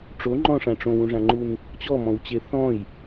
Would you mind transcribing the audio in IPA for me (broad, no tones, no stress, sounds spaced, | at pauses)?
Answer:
ʈ͡ʂ o ŋ͡ǃ ɔ̃ ʂ ã ʈ͡ʂ õ w ũ ʐ ã ŋ͡ǃ u n | t͡ɕ ɔ m ɔ̃ w t͡ɕ e θ ɔ̃ j